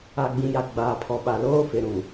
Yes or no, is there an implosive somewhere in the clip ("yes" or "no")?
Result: yes